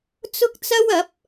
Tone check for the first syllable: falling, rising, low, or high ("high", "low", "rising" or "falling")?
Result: high